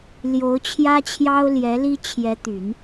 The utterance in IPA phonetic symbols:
l j o˧˥ ʊ̯ t͡ɕʰ j ä˥ t͡ɕʰ j ɑ˥ ʊ̯ l j ɛ˧˥ l i˥ t͡ɕʰ j ɛ˧˥ t̪ y˨˩˦ n

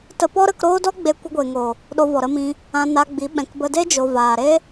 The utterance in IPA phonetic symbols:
t ə˧ p ɔ˦ ɾ ə˧ k ɾ oː˦ d ɔ˦ ɡ͡b e˧ kʷ ə˧ ɡʷ e˨ ŋ o˨ | ɗ o˧ v ɔ˨ ɾ ə˧ m ĩ˧ | ã˧ n a˧ ɡ͡b i˨˦ ɓ ɛ̃˨ k b ə˧ d e˦ d͡ʒ o˨ v aː˨ ɾ e˦

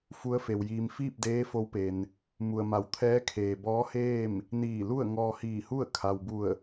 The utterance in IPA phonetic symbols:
f u˧˥ ə̯ f e˩ w j iː˩ m f iː˥˨ p̚ d eː˧˥ f o˧˥ w p e˩ n | m u˩ ə̯ m a˩˧ w t̪ʰ ɛː˧˥ kʰ eː˩ b ɔː˧˥ h eː˥˨ m | n iː˧˩ l u˥˨ ə̯ ŋ ɔː˧ h iː˧˩ h u˥˨ ə̯ kʰ a˩ w b u˧˩ ə̯

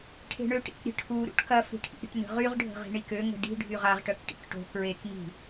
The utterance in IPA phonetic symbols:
ʈʰ e̤ ɳ ø ʈ ḭ k ɾʲ ə̤ ʈʰ u ɾ ṵ ʈ k ɐ f i̤ ʈʰ ḭ ɾʲ ə̤ ʈ n ə̤ ʁ y ʁ ɖʱ ə̤ ʁ i̤ ɳ i k ø ŋ ə̤ d i̤ ɖʱ y ʁ a ʁ ʈ œ k ʈ ḭ k ʈ o̤ k ɹ e k ŋ i̤

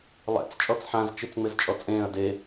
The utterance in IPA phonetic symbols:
lˠ ɛ̰ t͡s t͡ʃʼ ɔ t͡s ħ ã z t͡ʃ i t͡s ŋ͡m e z t͡ʃʼ ɔ t͡sʼ ẽː ɐ̯ d e

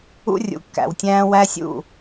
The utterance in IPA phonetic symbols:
ṵ˦ rʲ ṵ˨ kː æ̰˨ w tʲ æ̃ː˦ w æ˦ sʲ ṵ˦˨

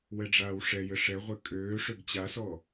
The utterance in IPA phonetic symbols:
w ɛ ɖ͡ʐ aː w ʂ ɛ j ɘ ʂ ɛ ʁʷ ɘ kʼ øː ʂ ø ɡ t͡ɕ a s ɔ

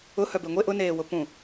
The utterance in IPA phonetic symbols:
ʊ h œ b e ŋʷ e ʔ ʊ n eː w ʊ p ũ

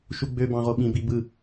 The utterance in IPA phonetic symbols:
ʃ u ɡ͡b ø b ɑ̃ ʁ o ɓ ĩ b i b ɯ

